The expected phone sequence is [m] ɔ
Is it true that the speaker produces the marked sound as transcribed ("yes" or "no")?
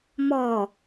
yes